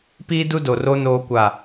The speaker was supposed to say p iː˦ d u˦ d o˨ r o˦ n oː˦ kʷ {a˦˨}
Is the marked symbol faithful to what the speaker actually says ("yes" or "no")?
yes